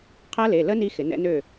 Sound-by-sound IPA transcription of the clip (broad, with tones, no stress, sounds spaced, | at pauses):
qʰ ɐ˦˥ l e˩˧˩ l ə˦˥ n i˦˥ x ɪ˨˩˦ n ɛ̰˦˥ n ø˥˨